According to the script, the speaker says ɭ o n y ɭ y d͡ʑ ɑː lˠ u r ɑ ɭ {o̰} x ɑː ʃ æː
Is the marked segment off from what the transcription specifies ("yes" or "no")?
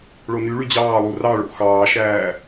no